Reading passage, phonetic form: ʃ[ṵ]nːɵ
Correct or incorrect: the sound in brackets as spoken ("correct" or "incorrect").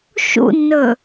correct